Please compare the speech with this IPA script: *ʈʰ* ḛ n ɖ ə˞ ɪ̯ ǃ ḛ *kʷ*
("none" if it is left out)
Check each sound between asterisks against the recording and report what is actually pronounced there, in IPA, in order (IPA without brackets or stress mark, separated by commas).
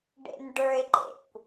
ɖ, kʷ